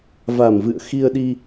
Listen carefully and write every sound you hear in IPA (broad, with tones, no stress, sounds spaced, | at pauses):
v a˨˩ m v ɨ̰˧˨ ə̯ x i˧ ə̯ ɗ i˧